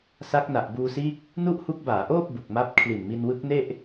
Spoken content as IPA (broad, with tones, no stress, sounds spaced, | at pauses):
s a˦˥ k̚ n a˨˩ ʔ b uː˧ s iː˦˥ k̚ | n u˥˩ ʔ h u˦˥ k̚ b aː˩˦ ʔ oː˥˩ p̚ b u˨˩ k̚ m a˦˥ p̚ kʰ l i˨˩ n m i˧ n w ɯ˦˥ k̚ n e˥˩ ʔ